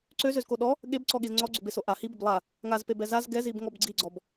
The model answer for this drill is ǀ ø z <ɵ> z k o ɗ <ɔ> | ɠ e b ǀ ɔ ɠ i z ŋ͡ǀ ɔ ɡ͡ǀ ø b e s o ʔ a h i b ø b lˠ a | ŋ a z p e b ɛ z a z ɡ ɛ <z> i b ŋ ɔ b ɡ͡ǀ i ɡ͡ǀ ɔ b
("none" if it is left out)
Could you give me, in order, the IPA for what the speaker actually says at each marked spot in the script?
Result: ø, ɔ, z

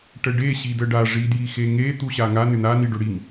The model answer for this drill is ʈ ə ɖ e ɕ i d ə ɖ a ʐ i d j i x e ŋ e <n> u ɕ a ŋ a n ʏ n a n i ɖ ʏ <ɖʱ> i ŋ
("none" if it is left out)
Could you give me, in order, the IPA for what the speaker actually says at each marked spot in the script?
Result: t̪, ɽ

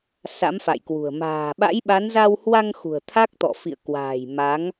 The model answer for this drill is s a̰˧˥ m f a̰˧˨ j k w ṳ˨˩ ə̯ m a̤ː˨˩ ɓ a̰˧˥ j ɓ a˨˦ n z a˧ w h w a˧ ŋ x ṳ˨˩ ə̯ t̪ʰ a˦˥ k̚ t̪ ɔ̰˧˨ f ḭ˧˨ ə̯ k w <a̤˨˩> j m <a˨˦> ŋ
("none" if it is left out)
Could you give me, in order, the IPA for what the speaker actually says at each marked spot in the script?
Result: a̤ː˨˩, a˨˦

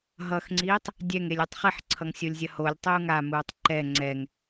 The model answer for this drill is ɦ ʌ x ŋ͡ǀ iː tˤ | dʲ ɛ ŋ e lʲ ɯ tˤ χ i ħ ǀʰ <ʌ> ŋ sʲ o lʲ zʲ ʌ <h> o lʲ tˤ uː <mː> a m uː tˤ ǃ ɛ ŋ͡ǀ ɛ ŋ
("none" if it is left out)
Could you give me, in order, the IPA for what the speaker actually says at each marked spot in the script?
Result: ʌ, h, ŋ

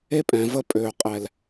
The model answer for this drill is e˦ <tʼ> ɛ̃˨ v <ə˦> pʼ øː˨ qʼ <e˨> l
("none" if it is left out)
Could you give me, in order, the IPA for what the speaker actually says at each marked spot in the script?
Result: pʼ, ə˦, ɛ˨

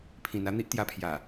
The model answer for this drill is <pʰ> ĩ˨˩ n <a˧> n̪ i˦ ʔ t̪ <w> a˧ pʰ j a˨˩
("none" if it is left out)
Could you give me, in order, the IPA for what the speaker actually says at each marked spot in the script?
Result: pʰ, a˧, j

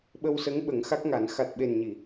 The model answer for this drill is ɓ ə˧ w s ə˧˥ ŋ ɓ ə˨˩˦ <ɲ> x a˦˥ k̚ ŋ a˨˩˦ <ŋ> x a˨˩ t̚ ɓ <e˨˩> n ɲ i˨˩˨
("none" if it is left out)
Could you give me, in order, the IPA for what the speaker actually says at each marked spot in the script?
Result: ŋ, n, e˨˩

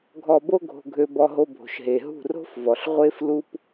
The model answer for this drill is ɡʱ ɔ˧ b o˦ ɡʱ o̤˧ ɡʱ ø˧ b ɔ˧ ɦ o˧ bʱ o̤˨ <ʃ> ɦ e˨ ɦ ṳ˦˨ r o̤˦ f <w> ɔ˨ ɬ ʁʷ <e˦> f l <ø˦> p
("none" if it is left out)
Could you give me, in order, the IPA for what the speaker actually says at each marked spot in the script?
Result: ʃ, v, e˦, u˦

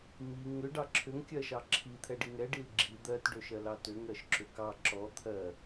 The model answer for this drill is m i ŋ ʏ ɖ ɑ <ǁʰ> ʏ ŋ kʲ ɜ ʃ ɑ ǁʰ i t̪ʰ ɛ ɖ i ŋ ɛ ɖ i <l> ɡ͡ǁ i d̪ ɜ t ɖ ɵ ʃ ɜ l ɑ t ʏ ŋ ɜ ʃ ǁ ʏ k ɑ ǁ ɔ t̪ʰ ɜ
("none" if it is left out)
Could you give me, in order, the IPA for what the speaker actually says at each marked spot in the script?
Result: ǁʰ, l

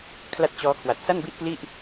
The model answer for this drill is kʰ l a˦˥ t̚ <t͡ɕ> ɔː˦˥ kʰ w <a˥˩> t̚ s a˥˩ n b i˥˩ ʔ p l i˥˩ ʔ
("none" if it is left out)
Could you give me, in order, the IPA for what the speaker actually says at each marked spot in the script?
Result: t͡ɕ, a˨˩

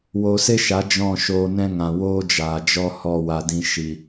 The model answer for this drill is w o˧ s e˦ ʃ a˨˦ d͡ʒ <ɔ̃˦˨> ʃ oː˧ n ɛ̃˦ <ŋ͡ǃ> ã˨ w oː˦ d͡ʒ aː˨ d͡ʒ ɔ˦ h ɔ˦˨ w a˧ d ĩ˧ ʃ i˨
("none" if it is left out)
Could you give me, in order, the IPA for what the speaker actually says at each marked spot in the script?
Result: ɔ̃˦˨, ŋ

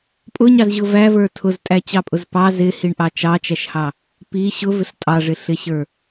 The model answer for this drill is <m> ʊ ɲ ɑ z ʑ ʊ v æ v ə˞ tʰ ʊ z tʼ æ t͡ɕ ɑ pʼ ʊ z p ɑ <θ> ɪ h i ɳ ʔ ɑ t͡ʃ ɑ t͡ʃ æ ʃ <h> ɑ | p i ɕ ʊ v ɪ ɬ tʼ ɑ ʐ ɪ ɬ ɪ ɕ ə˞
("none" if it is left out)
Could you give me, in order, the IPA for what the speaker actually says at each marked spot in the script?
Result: pʼ, z, h

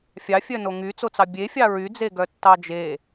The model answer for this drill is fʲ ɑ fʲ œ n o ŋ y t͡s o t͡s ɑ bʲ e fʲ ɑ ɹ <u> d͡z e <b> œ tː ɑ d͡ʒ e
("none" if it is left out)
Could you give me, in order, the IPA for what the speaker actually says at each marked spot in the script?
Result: y, ɡ

